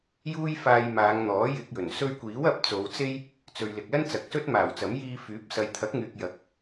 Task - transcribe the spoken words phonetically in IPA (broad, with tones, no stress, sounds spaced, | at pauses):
j uː˥ j f aː˧ j m aː˨˧ ŋ n̪ ɔː˨˥ j ɪ˧ k̚ j ɵ˨˩ n s ɵ˧ ɥ kʷ iː˨˥ w ɐ˨˥ p̚ t͡s o˨˧ w t͡s e˥ j | t͡s ɵ˨ ɥ l ɪ˨ k̚ l ɐ˥ n t͡s ɐ˨˥ k̚ s ɵ˥ t̚ m aː˨˩ w t͡s ɐ˨˥ m j iː˧ f yː˨˥ p̚ s ɐ˨ j t̪ʰ ɐ˨˥ k̚ ŋ yː˨ k̚ j ɐ˨ k̚